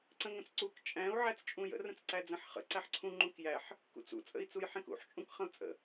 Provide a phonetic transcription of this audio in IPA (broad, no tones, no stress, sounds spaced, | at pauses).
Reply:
ǀ ə̃ ŋ ə̃ t͡s ǀ u k t͡ʃʼ æ̃ u̯ ʕ æ t͡s t͡ʃʼ ũ j ə̰ r ə̃ t͡s ǀ æ d͡z ə̃ ħ χ ə̰ ǀ æ ħ ǀʰ ũ ŋ͡ǃ ũ k j æ ħ | k ṵ t͡s ṵ t͡sʼ ə̰ i̯ t͡s u j ħ ẽ k ṵ ħ t͡ʃʼ ũ k χ ə̃ u̯ t͡sʼ ə̰